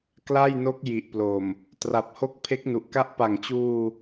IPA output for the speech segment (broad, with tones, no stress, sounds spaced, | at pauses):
k l a˥˩ j n o˦˥ k̚ j i˨˩ ʔ p l o˨˩ m | t r a˨˩ p̚ h o˦˥ k̚ pʰ e˦˥ k̚ n u˨˩ ʔ k a˦˥ ʔ p a˨˩ ŋ t͡ɕ uː˧